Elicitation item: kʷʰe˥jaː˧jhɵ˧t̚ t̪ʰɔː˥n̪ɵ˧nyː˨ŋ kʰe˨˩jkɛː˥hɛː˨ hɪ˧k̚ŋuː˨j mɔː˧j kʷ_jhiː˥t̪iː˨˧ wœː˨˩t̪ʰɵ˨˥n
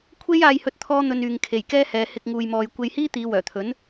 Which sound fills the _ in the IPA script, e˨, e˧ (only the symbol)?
e˧